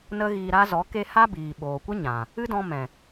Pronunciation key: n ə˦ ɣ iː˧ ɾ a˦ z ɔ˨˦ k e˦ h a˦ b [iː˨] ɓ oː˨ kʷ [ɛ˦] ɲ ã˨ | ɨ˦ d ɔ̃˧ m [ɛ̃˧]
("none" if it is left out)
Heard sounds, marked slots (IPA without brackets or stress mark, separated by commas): iː˨, ə˦, ɛ̃˨